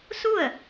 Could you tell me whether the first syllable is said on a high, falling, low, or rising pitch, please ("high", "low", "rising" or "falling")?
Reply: falling